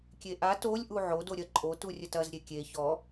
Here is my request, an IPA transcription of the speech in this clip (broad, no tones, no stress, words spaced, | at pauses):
kʲeʔa tolʲ ʔuʕo doɾʲɐ ǃʼotu rʲətɐz ɾʲekʲe çɔ